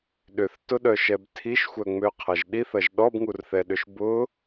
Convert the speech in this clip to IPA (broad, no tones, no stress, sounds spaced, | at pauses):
ɗ ʏ θ t ʊ ɗ œ ʃ ɛ b tʰ i ʃ xʷ œ ŋ͡m ø qʰ ɐ ʒ ɗ i θ ɐ ʒ ɗ ɔ b ŋ u r θ ɛ ɗ ʏ ʃ b ʊ